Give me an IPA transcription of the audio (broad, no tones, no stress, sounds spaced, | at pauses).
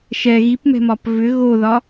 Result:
ʃ ɛ ɣ i p m ɛ̤ m ɒ p v ʏ ɣ o ð ɒ